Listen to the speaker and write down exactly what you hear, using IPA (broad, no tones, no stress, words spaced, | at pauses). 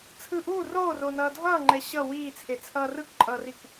t͡sʰɯ ʔuː roːronʌː dʱʌːŋ͡ǃɛ ɕʌ wiːt͡sʰet͡sʰʌː rɯkǃʼʌːrik